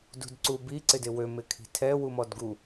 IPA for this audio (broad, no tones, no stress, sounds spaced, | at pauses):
d ṳ d ǀ u b i ǀ ɪ d ɪ w ø m ɪ kʰ i̤ tʰ ɛ w u m ɔ d ɡ u